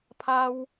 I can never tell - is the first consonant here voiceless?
yes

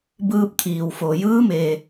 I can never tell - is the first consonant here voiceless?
no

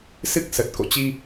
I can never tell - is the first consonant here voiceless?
yes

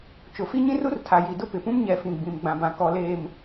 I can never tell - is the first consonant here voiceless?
yes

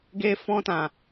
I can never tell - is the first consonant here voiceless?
no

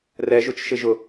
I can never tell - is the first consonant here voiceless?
no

